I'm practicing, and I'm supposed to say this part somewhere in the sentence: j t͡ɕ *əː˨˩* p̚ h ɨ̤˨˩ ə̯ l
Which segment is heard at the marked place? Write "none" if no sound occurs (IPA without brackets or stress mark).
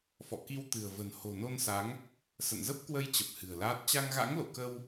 ə˨˩